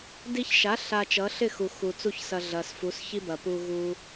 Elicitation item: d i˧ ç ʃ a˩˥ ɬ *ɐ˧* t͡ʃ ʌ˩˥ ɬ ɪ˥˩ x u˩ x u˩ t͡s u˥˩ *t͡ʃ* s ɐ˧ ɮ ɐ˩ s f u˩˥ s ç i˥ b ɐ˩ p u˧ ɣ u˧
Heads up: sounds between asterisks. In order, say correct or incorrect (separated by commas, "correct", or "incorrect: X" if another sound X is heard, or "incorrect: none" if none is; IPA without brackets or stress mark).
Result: incorrect: a˧, incorrect: ç